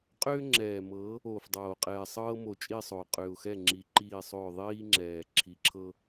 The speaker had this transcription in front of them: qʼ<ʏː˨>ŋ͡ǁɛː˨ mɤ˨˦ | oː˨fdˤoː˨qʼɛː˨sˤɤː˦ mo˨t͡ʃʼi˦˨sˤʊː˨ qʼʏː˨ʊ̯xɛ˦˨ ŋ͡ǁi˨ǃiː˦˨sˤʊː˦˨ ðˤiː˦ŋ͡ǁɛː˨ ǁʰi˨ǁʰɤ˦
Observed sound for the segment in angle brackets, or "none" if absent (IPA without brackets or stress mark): ʏː˦